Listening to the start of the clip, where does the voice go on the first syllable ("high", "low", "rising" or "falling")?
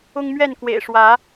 high